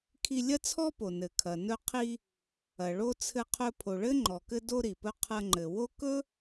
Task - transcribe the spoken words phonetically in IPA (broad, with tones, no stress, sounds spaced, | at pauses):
kʰ i˧ lʲ ɐ˥ t͡sʰ ɔ˥ p o˩ n ɘ˩ kʰ ɐ˩ n ɵ˧ qʰ i˧ | ɐ˩ ɭ o˥ t͡sʰ ɘ˧ qʰ ɵ˧ pʰ o˩ ɭ ɘ˥ ŋ͡ǃ ɔ˩ k ɘ˧ d o˧ ɾ i˩ p ɵ˧ qʰ ɐ˧ ŋ͡ǃ ɘ˩ w o˥ k ɵ˥